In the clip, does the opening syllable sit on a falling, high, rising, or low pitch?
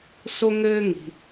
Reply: high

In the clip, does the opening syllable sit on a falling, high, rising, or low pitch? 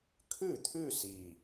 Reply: falling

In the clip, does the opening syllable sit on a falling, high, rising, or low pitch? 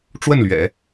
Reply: falling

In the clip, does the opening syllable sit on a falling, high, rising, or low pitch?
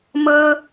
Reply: high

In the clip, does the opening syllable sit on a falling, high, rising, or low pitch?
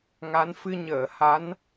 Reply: rising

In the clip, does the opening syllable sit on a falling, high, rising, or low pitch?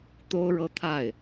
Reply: high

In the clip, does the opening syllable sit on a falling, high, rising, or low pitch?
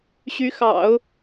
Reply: rising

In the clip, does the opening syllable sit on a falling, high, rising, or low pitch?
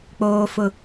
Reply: low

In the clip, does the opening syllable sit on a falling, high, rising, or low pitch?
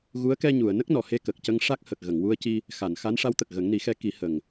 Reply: rising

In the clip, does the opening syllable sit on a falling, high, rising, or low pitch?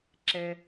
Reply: low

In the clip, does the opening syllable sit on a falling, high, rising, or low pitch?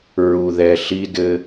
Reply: low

